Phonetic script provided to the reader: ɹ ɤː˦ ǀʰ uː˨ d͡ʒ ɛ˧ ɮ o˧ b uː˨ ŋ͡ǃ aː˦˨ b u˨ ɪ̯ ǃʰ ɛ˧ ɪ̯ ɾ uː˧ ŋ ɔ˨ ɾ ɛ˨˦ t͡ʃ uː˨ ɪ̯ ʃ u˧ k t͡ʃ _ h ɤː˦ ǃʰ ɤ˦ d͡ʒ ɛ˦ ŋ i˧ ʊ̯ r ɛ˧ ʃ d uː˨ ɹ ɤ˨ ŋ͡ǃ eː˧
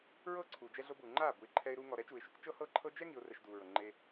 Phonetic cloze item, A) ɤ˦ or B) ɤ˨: A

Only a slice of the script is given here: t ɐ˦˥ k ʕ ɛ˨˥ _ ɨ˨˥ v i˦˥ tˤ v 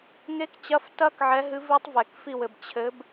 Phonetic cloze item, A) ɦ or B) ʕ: A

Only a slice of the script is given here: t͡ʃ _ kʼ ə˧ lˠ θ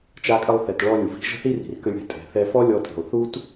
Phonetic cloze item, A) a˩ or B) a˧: B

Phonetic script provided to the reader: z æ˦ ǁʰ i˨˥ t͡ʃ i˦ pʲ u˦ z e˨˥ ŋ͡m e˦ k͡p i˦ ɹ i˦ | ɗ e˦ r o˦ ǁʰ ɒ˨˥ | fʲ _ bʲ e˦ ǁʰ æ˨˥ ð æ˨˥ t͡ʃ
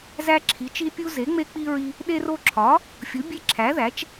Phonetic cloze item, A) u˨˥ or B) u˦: A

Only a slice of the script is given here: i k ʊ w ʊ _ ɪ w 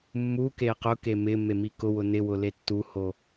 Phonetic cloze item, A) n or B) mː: A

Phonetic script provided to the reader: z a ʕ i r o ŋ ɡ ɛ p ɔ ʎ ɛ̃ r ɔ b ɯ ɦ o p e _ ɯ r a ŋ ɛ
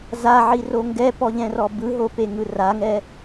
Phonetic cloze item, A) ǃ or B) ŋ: B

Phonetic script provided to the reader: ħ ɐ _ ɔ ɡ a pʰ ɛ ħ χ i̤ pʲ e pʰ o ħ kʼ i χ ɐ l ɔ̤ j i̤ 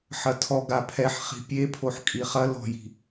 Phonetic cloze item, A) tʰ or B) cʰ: A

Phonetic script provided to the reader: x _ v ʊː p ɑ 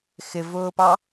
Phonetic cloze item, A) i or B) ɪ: B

